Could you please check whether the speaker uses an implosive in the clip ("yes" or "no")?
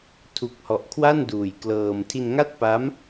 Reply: no